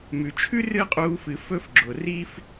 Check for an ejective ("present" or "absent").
present